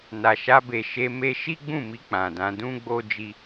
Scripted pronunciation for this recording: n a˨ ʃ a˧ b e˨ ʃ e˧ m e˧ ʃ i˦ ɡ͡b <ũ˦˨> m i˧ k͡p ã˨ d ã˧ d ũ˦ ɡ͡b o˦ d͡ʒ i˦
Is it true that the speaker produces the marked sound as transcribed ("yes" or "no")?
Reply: yes